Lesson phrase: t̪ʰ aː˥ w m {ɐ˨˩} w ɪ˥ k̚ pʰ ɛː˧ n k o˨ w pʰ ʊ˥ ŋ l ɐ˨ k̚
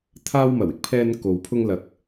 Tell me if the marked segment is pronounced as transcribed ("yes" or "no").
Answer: yes